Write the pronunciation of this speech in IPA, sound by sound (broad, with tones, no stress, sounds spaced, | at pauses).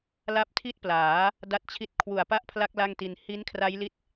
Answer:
l a˥˩ p̚ tʰ i˥˩ t̚ p l aː˩˦ | d a˦˥ t̚ t͡ɕʰ i˦˥ t̚ kʰ w u˨˩ a̯ p a˥˩ ʔ pʰ l a˦˥ k̚ l a˥˩ ŋ t i˧ n h i˦˥ n kʰ r a˦˥ j l i˦˥ t̚